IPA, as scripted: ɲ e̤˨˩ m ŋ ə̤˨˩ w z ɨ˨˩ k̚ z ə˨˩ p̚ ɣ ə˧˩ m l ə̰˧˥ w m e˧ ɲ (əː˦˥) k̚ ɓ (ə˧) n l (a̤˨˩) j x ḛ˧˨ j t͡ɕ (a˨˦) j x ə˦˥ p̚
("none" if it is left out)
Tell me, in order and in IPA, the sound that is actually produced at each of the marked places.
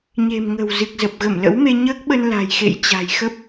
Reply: əː˦˥, ə˧, a̤˨˩, a̤˨˩

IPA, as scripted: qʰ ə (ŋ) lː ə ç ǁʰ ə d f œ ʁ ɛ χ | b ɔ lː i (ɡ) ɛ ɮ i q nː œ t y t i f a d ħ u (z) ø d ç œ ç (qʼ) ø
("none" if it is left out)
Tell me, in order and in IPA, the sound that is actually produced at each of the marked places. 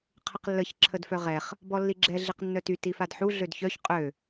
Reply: q, ɡ͡ǁ, ɮ, qʼ

